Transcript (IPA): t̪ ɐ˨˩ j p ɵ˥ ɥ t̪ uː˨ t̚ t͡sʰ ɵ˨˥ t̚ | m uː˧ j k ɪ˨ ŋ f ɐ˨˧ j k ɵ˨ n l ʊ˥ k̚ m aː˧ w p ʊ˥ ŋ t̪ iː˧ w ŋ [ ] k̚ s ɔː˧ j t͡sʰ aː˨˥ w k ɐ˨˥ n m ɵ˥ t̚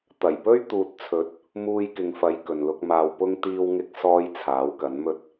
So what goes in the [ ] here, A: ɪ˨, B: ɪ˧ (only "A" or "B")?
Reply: B